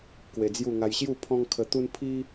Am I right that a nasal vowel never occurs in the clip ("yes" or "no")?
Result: no